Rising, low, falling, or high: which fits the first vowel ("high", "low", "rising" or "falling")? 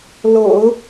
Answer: low